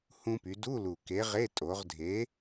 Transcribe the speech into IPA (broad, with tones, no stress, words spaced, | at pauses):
hũ˧py˩˧ du˧˥˧lu˨˩ke˨˥ʁe˧˥˧ tʼo˩˧ʁdʱe˨˥